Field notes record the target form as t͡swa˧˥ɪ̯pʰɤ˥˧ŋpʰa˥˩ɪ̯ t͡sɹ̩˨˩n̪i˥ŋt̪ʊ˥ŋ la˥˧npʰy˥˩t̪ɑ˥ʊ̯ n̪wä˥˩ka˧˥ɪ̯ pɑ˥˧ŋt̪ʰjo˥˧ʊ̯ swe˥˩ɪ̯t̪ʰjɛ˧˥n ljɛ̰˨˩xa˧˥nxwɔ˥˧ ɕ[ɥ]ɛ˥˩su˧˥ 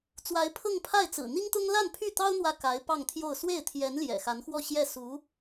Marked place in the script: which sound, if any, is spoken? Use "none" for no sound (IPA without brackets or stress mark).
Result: j